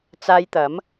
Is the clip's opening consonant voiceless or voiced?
voiceless